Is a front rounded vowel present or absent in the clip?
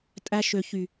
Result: present